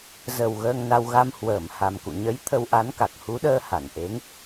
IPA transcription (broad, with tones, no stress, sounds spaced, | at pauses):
z ə˨˩ w ɣ əː˧ ŋ n a˧ w ɣ a˧ m h w əː˧˩ m h a˨˩ m k ṵ˧˨ ɲ ə˨˦ j t̪ʰ ə˧ w ʔ a˨˦ n k a˨˩ k̚ h u˨˦ ɗ əː˧ h a˧˩ n ʔ e˨˦ ŋ